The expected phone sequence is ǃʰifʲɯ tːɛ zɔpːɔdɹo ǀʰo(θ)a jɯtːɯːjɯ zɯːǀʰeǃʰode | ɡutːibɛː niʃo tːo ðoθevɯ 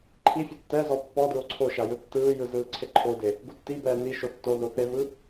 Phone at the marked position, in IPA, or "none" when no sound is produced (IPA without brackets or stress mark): ʃ